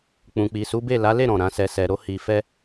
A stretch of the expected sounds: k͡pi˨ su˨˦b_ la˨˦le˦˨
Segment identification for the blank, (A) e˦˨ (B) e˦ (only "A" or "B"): A